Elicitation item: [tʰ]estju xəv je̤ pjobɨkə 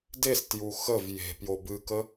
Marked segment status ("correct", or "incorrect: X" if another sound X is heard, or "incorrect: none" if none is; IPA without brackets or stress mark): incorrect: d